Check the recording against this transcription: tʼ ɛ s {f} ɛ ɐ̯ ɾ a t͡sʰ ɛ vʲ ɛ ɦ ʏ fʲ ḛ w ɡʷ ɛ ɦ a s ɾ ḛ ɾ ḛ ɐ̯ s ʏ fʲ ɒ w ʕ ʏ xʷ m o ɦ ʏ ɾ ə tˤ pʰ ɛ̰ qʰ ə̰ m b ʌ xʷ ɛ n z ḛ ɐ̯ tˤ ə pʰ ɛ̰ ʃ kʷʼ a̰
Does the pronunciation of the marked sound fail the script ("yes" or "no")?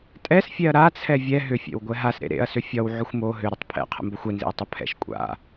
yes